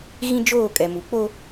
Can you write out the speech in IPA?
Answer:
ɣĩ˦d͡ʒoː˦˨kʼɛ˨mu˨ k͡po˦

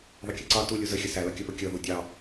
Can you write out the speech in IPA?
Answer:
ðˤəkʲʌǀɑ tu lʲuzəxʲə sælʌkʲʌpə kʲʌ ðudʲɑ

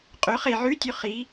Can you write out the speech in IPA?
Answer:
qʼɵ χe ʕʉtʲʉ χi

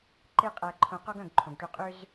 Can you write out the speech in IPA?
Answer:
ǃe˧ qʼæ˧ǃʰõ˧ qɔ˦ɡœ̃˦˨ɡǃʰõ˨ɡʈø˧ qʼø˦z

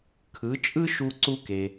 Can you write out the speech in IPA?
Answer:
kʰɯ˩˥t͡ʃʼɯ˥ʃu˧ ǀu˧ke˩

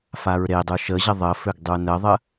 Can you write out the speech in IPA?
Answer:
faɹɾedˤu ʃəʑə ðˤəføɡ dˤunəðˤə

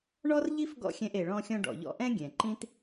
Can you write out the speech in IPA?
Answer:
ɳɔ˥rʎi˥f ɡɔ̰˥xʲɛ̃˧ʔ e˩ɭɔ̃˧xʲɔ̃˧ ɖɔ̰˩ʎɔ̰˧ʔɛ̃˥ ɡʲɛ̃˩ǃĩ˥t

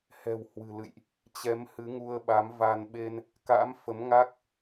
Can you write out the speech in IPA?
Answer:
hɛ̤˨˩whwɨ̤˨˩lɨ̰˧˨jʔ | t͡ɕɛ˨˦mhɨ˨˦ŋu˧ə̯ ɓa˨˦mva˧n ɓe˧n | ka̰˧˥mfə˨˦mŋa˦˥k̚

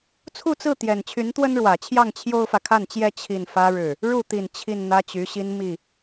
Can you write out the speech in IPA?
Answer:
t͡sʰu˥˧t͡sɹ̩˥˩t̪jɛ˨˩n t͡ɕʰy˧˥nt̪wə˥nɻwä˨˩t͡ɕʰjɑ˥˩ŋ t͡ɕʰjo˥ʊ̯fä˨kʰa˥˩nt͡ɕjɛ˥ t͡ɕʰi˥˩nfä˥ɻɻ̩˥˩ | ɻu˥˩t̪i˨˩n t͡ɕʰi˥˩nn̪ä˥t͡ɕy˧˥ɕi˥n mi˥˩

